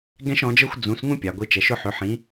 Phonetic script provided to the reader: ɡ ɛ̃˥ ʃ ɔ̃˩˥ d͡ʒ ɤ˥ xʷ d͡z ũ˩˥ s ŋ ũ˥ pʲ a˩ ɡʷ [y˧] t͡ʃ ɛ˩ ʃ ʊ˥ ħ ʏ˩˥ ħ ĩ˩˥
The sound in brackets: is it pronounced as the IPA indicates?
no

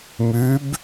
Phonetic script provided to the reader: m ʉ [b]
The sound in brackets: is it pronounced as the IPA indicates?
yes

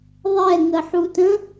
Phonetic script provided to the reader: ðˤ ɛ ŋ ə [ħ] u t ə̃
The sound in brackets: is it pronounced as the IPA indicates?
yes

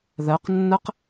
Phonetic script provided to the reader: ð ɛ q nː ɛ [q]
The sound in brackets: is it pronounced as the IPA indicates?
yes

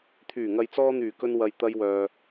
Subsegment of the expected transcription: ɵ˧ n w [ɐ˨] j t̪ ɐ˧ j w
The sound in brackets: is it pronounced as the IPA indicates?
yes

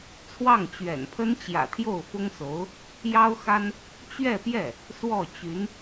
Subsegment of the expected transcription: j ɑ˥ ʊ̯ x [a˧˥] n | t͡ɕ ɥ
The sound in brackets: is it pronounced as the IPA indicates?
no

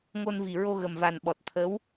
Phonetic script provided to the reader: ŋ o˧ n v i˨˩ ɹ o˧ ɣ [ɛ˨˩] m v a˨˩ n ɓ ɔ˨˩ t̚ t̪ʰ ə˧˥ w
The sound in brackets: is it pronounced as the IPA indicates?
no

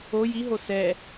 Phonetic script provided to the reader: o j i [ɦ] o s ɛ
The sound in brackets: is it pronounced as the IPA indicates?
yes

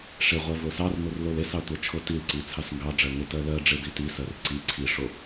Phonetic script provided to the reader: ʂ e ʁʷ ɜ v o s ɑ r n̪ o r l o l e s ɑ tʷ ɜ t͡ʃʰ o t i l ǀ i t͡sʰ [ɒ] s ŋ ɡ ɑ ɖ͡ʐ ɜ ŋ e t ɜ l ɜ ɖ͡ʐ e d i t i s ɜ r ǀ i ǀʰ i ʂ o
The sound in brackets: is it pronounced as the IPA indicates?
no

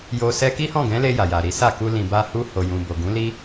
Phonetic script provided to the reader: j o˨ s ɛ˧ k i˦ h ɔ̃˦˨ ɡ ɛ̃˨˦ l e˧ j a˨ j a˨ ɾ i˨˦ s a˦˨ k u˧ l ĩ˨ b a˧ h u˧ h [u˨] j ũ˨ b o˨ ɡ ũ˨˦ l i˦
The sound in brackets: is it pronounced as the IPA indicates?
no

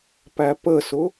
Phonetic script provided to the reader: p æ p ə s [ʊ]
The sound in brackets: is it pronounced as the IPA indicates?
yes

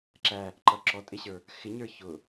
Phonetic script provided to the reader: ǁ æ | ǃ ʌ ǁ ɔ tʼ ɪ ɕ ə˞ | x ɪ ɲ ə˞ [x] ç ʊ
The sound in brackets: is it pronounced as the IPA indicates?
no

